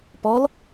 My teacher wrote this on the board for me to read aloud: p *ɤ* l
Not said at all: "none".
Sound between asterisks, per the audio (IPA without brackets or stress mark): ɔ